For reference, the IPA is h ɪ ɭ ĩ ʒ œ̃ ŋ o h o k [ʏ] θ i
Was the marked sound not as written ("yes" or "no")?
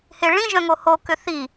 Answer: no